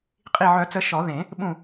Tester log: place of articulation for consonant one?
uvular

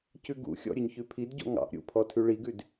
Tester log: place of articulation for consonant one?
palatal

